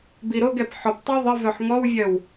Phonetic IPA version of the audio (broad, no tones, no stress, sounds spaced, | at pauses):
b i ɾ o ɡ ɛ p ħ ɔ p tˤ i ðˤ ə v œ ħ ŋ ɔ w vʲ œ w